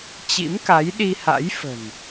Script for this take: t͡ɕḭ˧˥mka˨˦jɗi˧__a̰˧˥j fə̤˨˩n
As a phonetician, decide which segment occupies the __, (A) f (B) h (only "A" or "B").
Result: B